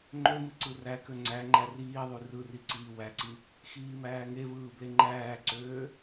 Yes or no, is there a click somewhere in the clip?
yes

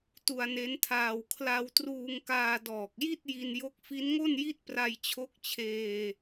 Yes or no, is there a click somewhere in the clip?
no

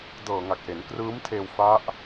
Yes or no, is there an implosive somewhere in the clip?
no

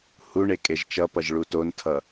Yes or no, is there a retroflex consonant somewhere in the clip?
yes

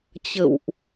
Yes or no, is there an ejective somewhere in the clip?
no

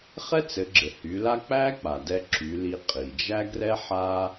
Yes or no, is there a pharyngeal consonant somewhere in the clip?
yes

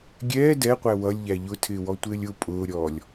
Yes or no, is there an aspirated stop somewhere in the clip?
yes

